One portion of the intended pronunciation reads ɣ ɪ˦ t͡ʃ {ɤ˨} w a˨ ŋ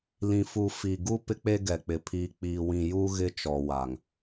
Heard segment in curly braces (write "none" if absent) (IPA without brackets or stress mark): ɔ˨